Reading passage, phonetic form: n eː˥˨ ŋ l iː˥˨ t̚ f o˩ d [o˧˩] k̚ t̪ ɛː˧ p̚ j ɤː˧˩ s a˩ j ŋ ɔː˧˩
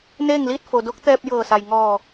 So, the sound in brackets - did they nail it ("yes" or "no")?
no